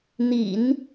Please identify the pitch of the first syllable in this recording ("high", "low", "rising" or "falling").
low